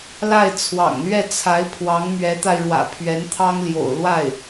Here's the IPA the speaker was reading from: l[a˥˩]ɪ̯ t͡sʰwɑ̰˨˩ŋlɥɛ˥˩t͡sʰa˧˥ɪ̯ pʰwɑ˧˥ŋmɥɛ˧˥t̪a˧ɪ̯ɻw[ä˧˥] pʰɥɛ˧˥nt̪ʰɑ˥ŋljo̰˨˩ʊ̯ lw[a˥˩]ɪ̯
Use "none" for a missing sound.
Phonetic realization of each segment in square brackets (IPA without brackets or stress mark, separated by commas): a˥˩, ä̰˨˩, a˥˩